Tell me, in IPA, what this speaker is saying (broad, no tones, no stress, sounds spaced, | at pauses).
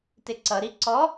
t ɪ ǀ ʌ ɾ i ǀ ɔ